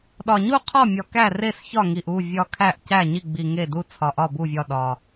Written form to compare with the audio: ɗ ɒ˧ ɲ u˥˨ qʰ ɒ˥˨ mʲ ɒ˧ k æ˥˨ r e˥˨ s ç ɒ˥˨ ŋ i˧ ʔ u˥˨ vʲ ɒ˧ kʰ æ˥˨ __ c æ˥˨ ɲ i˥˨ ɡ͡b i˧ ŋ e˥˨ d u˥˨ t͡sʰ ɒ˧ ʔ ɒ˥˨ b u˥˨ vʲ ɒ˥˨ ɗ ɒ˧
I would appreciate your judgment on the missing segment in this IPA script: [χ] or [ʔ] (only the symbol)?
ʔ